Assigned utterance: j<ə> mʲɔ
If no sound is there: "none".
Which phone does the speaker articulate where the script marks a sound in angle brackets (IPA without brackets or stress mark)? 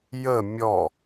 ə